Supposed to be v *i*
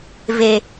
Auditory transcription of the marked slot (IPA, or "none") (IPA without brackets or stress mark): e